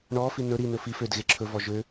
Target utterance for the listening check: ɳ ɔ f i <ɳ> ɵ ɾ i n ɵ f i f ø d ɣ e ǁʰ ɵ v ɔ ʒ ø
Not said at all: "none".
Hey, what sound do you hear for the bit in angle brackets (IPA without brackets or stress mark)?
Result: n